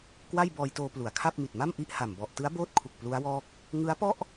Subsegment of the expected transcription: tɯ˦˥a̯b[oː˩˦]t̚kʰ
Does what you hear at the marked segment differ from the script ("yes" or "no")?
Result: yes